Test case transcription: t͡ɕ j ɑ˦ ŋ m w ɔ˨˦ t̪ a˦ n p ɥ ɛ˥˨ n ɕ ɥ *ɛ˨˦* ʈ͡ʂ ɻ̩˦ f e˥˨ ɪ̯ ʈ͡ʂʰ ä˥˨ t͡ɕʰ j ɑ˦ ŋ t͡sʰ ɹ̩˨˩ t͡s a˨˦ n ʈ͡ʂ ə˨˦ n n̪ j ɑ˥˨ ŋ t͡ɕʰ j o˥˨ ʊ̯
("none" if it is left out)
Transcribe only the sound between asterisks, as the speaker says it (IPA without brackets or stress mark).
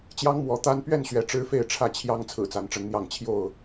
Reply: ɛ˨˦